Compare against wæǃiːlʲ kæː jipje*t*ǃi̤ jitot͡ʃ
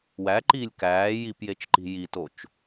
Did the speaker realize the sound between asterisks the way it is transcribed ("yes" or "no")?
no